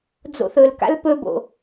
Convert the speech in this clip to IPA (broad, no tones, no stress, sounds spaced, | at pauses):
d͡z o̰ θ ɵ l k a̰ l p ɵ b o̰